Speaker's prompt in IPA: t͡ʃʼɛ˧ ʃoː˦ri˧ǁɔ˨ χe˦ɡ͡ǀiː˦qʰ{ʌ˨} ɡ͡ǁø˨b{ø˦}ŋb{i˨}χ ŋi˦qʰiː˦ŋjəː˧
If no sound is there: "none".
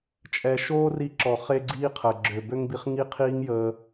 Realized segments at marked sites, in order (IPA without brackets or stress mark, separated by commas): ə˨, ø˦, i˧